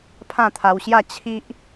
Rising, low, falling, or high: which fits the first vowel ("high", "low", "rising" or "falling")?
falling